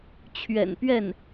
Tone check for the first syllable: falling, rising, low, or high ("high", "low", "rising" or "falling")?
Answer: low